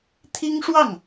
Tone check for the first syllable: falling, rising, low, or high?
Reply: high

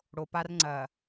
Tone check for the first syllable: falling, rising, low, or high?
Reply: low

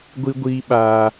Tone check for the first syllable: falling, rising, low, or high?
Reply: high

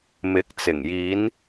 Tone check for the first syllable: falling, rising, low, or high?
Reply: rising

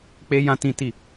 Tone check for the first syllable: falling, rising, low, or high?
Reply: high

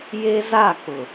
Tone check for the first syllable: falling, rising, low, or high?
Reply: high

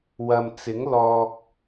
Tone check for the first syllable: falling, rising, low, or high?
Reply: low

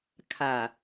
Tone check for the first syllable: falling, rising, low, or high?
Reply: low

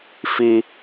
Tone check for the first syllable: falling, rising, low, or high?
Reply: high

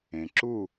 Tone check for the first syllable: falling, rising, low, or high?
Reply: low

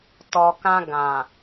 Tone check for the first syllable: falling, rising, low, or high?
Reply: low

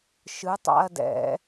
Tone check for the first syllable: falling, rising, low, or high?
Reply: rising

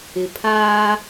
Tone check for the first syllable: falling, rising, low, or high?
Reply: low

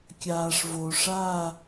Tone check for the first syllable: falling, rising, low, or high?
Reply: low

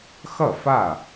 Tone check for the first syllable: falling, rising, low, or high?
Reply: falling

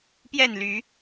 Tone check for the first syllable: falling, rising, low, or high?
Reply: falling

